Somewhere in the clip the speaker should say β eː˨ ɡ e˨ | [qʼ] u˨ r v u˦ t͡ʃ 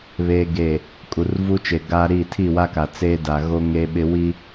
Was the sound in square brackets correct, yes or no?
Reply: no